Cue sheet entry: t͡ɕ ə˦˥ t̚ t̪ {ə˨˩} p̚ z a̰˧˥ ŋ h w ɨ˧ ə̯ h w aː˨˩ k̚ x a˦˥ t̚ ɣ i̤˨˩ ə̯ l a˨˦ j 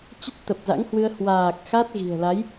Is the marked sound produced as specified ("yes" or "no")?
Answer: yes